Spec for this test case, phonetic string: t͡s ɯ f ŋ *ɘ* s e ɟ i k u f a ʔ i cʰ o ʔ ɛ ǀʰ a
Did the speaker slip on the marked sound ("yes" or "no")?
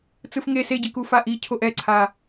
yes